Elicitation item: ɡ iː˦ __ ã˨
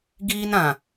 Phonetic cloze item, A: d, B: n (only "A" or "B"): B